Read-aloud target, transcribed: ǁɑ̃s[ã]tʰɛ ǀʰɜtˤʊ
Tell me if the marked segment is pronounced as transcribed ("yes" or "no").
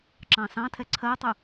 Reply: no